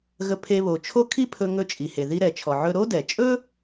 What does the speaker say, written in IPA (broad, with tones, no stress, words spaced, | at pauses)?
ɣə˧pʰe˧βo˩t͡ʃʰo˥ kʰi˥pʰɵ˧ ŋɵ˧t͡ʃʼi˩he˩ ði˧ɾɛ˩t͡ʃʰɔ˩ ʕɵ˧ɾo˥dɛ˩ t͡ʃʼɵ˥